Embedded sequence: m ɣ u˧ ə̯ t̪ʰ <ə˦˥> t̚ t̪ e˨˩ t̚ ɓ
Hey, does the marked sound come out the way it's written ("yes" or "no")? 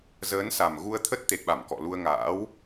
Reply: yes